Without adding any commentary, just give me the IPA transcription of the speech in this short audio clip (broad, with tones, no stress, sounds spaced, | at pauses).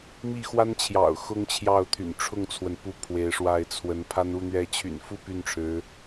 m i˥˩ x w a˥ n t͡ɕʰ j ɑ̰˨˩ ʊ̯ x ʊ˥ ŋ t͡ɕʰ j ɑ˥˩ ʊ̯ t̪ʰ y̰˨˩ n ʈ͡ʂʰ ʊ˥˩ ŋ t͡sʰ w ə˩ n p u˧˥ pʰ w e˧˥ ɪ̯ ʂ w a˥˩ ɪ̯ t͡sʰ w ə˧˥ n pʰ a˥ n u˥˧ n̪ ɥ ɛ˥˩ t͡ɕʰ y̰˨˩ n f u˥˧ p y˥˩ n ʈ͡ʂʰ ɻ̩˧˥